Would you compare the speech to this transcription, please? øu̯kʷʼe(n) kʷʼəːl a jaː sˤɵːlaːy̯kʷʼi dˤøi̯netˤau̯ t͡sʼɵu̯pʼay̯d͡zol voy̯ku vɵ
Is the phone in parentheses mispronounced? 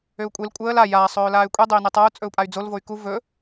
yes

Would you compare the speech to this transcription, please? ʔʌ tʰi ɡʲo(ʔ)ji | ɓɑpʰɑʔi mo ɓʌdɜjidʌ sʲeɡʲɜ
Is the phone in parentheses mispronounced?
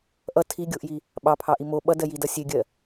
no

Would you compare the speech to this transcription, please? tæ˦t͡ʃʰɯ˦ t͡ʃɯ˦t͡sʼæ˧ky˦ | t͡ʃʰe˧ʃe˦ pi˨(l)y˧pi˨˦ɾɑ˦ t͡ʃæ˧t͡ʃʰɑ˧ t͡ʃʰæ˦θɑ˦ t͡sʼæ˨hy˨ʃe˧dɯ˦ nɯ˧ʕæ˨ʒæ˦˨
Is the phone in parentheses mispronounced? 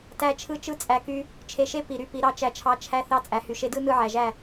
yes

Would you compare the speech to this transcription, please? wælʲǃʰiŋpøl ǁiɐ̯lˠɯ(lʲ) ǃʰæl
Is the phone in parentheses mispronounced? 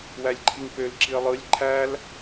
no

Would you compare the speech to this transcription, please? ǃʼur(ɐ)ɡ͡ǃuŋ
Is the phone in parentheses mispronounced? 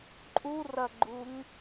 no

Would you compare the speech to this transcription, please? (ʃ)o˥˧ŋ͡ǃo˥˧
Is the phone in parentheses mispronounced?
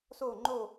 yes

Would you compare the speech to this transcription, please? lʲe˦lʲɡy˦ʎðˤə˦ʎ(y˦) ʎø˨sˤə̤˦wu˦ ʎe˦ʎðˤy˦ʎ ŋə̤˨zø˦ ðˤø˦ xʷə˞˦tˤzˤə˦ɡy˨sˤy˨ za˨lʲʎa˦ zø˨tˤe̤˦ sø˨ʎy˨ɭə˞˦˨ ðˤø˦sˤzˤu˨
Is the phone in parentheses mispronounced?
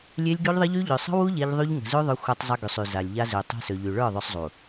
no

